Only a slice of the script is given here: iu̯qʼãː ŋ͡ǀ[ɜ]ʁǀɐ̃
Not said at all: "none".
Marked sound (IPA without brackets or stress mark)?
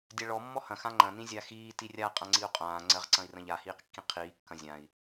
ɜ